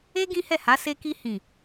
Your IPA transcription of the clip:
e˦ ɡ ĩ˦ h ɛ˦˨ h a˨˦ s e˧ k i˧ h ĩ˨

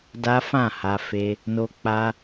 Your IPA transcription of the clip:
d a˦ f ã˦˨ h a˧ f e˧ | n o˧ k͡p a˧

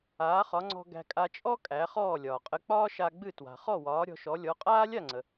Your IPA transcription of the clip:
aː˩˥ χ ɒ˩˥ ŋ͡ǀ ɔ̤˧ ɡ æ̤˧ kʼ a˧ t͡ʃʼ ɔ˥ kʼ æ˩˥ χ ɔː˥˩ lʲ ɒː˩ qʼ ə˧ k͡p ɒː˥ ʃ a˧ ɡ͡b ɨ˥˩ t w a̤˩ χ ɔ˥˩ w ɒː˩˥ ɾʲ ɔ̤˧ ʃ ɔ˩˥ lʲ ɔ˩˥ qʼ aː˥ lʲ a˥˩ ŋ͡ǀ ə˩

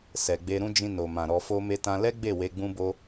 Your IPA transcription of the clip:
s ɛ˨ ɡ͡b e˧ ɾ ũ˦ d͡ʒ ĩ˧ n o˨ m ã˨ ɾ ɔ˧ f o˦ m e˦ t ã˦ l ɛ˦ ɡ͡b e˦˨ w e˧ ɡ͡b ũ˦ b o˦

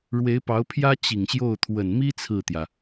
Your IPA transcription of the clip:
ɻ w e˧˥ ɪ̯ p ɑ˧˥ ʊ̯ pʰ j ä˥ t͡ɕ i˨˩ ŋ ɕ j o˥˩ ʊ̯ t̪ʰ w ə˨˩ n m i˥ t͡sʰ ɹ̩˥˩ t̪ j ä˩

